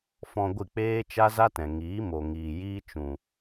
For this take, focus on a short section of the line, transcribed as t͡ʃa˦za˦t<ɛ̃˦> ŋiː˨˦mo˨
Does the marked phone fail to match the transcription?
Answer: yes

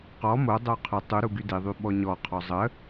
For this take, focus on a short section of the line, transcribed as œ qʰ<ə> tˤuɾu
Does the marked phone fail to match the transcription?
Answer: no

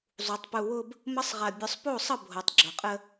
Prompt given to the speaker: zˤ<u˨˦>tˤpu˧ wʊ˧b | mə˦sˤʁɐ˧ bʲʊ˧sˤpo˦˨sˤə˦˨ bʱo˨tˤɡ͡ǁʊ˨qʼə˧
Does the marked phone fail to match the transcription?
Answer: no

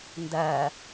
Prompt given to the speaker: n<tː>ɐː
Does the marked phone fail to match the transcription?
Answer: yes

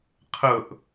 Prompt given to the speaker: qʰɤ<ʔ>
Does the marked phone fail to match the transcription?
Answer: no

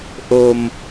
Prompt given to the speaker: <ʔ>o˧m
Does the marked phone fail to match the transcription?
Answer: no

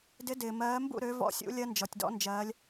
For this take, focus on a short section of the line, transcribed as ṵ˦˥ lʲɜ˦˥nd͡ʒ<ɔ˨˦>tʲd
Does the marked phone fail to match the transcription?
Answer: yes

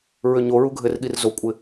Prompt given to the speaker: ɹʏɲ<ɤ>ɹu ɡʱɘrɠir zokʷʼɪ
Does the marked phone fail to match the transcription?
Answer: yes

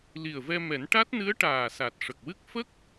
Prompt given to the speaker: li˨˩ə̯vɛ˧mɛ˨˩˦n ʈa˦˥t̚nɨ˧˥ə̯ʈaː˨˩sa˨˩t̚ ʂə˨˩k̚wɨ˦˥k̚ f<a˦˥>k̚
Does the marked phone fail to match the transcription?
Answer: yes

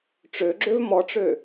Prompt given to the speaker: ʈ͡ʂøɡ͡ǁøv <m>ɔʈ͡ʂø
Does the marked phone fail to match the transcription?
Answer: no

